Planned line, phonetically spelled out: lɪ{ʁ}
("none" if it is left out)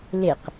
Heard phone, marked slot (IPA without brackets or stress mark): q